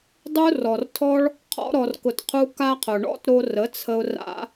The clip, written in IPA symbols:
dˤ u˧ r ɔ˨ r tʰ ɔ˦ ɭ | qʰ ɔ̰˧ ɾ ɔ˨ r k ʊ˨ t qʰ u˧ k a˦ qʰ ʊ˨ ɳ ɔ̰˦ t ɾ o˧ r ə˨˦ t͡sʰ ə˧ ʊ̯ r a̰˧

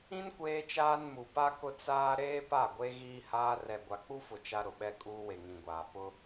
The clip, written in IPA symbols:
ĩ˦ n kʷ eː˦ t͡ʃ aː˦ n m u˨ p a˦ k ʊ˦ t͡s aː˦ ɾ eː˦ p a˦˨ ɡʷ e˦ ɣ iː˦ h aː˦ r ɛ˨ ɡʷ a˨ k͡p u˦ f ʊ˨ t͡ʃ a˦ ɾ ʊ˨ ɓ ɛ˦ kʼ uː˦ w e˨ ŋ ĩ˨ ɡʷ aː˨ p ʊ˦

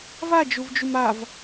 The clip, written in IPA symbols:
v a d͡ʒ u v d͡ʒ u m a v

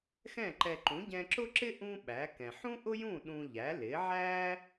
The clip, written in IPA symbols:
x ɛ̃˥˩ ǃ ɛ˧ ǃ ũ˩˥ ɟ ɛ̃˧ ǁ ʊ˥ ǁ ɪ˥ ʔ ũ˥ ɓ æ˩˥ k ɛ̃˩ ħ ũ˥ ʔ ʊ˥ j ũ˥˩ ɗ ũ˧ ʎ æ˩˥ l ɪ˩˥ ʕ æ˥

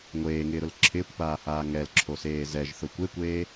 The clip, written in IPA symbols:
ŋʷ eː ŋ ɪː ɾ ʊ l ǁʰ ɪː kʷ p aː h aː ŋ ɛ l ǁʰ o s eː z ɛ ʒ θ ʊ kʷ e kʷ eː

